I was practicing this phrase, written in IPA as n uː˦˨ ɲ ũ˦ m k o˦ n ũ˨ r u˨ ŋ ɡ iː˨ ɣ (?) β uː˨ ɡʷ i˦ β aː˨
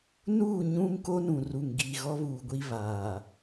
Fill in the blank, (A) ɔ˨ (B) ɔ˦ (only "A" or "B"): B